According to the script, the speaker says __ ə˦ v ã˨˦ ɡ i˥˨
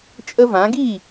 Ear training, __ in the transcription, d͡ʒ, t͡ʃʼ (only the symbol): t͡ʃʼ